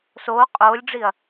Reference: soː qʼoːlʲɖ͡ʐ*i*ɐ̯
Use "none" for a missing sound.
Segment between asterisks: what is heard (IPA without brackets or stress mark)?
i